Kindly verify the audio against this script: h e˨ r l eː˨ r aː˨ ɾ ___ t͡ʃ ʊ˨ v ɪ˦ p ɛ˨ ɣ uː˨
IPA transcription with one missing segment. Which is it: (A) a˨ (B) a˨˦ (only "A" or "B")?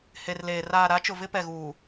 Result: B